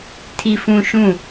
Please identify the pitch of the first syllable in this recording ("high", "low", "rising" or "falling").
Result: low